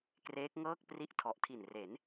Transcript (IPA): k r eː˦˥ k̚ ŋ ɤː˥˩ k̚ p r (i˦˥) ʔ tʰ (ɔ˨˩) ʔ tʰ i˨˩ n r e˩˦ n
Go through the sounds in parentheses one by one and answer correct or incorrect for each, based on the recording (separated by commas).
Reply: correct, correct